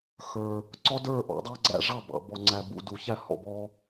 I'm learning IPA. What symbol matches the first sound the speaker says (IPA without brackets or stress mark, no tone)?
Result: x